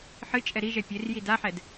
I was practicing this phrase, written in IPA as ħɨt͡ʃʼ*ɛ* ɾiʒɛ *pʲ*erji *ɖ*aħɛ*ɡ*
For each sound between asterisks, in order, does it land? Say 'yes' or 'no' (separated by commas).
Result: yes, yes, no, no